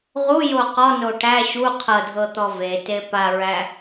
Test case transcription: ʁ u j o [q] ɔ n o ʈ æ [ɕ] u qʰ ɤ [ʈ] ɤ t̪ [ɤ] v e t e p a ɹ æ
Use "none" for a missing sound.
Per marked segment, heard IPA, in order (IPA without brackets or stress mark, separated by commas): q, ɕ, dʱ, ɔ